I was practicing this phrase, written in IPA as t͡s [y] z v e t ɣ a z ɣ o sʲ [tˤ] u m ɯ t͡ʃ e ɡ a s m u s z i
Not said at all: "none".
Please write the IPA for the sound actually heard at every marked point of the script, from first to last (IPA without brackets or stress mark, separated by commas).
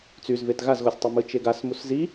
y, tˤ